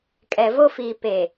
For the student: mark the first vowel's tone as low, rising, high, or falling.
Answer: low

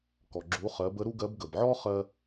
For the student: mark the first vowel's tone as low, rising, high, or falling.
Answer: low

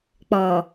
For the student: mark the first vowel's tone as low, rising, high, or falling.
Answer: low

